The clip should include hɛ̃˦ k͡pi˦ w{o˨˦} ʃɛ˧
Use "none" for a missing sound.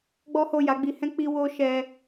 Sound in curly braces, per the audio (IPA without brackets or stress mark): o˦